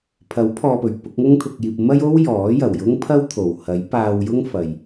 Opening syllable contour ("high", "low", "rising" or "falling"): rising